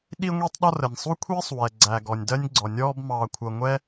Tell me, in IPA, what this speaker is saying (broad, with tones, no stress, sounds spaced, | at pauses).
ɗ i˥ ŋʷ i˥ tˤ ɗ ɒ˥ r ə˩ nʲ sˤ u˥ kʷʰ iː˥ sˤ w ɛ˩ ɡ͡ǀ æ˩ ɡ ɔ˩ nʲ d ɜ˥ nʲ ɡ͡ǀ ɔ˩ nʲ ɔː˥ b m ɑː˩ kʷʰ ʌ˩ ŋʷ ɛ˥